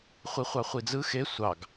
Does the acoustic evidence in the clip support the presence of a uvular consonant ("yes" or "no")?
yes